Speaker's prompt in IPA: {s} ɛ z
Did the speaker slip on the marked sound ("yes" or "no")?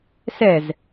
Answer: no